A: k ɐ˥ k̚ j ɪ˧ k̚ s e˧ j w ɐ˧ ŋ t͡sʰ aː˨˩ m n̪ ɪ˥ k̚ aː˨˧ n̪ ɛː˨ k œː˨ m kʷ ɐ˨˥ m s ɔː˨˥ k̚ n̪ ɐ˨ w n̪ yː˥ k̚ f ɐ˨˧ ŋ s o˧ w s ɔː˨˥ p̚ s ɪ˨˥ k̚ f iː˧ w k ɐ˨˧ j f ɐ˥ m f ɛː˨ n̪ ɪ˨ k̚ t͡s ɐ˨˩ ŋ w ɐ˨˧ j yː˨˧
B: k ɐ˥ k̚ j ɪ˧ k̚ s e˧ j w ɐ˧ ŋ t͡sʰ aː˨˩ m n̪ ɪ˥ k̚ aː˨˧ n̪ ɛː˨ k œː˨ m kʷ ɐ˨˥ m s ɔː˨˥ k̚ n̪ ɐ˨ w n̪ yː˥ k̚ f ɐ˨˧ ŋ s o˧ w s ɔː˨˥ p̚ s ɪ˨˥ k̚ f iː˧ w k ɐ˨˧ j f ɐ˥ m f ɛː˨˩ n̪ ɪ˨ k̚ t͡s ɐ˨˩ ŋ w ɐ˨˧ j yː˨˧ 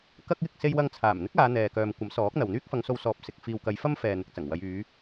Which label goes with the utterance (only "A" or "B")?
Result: A